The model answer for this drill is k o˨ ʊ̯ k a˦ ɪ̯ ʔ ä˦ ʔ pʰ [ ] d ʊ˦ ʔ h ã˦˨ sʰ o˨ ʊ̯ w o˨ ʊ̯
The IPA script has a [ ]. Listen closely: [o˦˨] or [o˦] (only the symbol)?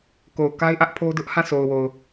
o˦